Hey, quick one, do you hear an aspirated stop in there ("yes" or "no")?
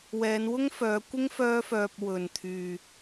yes